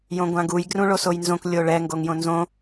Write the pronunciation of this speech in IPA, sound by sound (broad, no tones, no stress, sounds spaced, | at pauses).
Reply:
j õ ɡʷ ã ɡ u j ɡ r ũ ɭ o s o j n z õ k lʲ o ɭ ɛ ŋ ɡ o ŋ j õ n z õ